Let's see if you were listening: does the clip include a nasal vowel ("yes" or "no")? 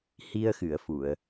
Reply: no